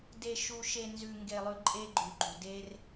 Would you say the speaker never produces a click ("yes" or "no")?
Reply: no